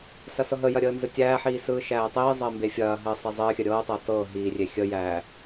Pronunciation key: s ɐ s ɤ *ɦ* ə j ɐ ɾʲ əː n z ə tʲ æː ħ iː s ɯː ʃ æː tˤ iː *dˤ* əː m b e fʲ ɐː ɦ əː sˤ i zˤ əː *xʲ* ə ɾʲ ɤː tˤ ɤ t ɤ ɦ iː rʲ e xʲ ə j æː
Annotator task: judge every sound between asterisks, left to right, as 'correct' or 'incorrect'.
correct, incorrect: zˤ, correct

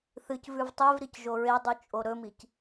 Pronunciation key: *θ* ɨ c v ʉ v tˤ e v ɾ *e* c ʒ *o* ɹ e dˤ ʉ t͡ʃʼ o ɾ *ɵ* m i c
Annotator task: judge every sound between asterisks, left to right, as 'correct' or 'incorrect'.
correct, incorrect: i, correct, correct

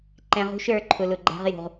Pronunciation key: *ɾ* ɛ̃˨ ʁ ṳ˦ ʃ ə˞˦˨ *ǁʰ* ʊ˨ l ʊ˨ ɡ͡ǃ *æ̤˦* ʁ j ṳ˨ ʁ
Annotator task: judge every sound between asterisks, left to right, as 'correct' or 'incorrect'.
incorrect: ǃ, incorrect: ǃʰ, correct

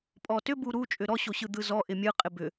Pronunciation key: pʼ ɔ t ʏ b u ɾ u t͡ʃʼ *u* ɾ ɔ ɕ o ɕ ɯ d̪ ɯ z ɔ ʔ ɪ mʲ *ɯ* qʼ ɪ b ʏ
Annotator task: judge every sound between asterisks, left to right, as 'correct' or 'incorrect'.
incorrect: ʏ, correct

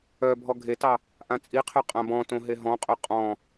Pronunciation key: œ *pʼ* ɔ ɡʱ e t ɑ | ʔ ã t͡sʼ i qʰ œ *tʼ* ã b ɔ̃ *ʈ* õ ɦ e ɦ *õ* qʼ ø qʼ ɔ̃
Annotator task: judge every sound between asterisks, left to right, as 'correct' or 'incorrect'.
incorrect: bʱ, incorrect: qʼ, incorrect: t, incorrect: ɔ̃

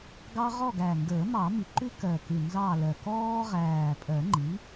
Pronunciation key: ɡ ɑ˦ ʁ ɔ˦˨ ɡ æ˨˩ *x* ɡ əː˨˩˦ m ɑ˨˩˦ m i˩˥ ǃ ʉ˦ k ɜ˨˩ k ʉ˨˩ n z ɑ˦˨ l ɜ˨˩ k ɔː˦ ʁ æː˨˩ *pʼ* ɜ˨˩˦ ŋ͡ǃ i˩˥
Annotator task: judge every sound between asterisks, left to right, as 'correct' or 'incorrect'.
incorrect: ŋ, correct

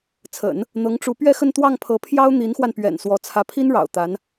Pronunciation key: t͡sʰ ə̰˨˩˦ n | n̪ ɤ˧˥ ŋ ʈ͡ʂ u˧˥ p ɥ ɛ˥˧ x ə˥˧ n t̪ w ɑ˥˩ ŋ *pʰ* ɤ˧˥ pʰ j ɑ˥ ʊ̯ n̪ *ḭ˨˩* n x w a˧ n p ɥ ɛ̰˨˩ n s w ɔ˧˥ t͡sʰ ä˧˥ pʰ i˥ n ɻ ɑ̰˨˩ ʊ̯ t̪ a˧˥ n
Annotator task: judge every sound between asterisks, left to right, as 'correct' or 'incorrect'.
correct, incorrect: i˧˥

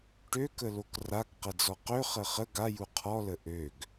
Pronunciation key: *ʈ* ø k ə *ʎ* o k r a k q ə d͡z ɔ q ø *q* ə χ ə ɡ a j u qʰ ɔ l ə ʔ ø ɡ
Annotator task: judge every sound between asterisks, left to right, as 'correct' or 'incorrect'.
correct, incorrect: l, incorrect: χ

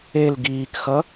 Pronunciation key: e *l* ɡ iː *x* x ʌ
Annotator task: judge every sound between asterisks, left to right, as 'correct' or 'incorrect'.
correct, incorrect: k

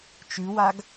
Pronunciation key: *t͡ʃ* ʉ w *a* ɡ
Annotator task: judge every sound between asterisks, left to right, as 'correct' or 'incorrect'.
correct, correct

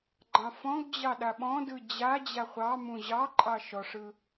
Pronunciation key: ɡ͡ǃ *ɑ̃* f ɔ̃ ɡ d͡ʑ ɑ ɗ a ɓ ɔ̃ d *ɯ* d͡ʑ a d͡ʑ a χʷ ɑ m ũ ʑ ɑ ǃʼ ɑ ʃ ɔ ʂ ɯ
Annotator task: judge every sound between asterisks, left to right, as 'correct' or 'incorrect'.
correct, correct

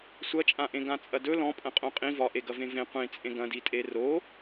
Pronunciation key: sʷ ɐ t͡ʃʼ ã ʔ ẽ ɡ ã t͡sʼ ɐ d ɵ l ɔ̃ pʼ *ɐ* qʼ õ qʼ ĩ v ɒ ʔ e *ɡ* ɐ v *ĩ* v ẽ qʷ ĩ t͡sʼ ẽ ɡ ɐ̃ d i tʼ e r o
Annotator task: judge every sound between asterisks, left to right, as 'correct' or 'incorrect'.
incorrect: ɐ̃, correct, incorrect: ẽ

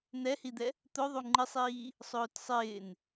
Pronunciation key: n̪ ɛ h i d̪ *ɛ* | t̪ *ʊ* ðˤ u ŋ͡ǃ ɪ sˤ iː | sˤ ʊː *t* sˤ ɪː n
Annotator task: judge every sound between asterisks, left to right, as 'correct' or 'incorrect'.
correct, correct, correct

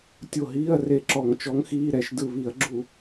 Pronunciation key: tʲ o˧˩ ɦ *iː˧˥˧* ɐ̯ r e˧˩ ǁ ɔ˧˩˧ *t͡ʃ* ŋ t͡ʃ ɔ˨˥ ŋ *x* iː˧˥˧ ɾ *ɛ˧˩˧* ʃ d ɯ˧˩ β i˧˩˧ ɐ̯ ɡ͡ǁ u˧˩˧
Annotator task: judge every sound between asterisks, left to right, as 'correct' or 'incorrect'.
correct, incorrect: none, correct, correct

